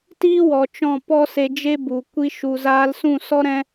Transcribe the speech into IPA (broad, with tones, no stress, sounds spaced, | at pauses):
t iː˦ w ɔ˨ t͡ʃ ɔ̃˦˨ p ɔ˦ s e˧ d͡ʒ e˦ b u˨ kʷ i˦ ʃ u˧ z aː˧ l s ũ˦˨ s ɔ˦ ɾ ɛ̃˦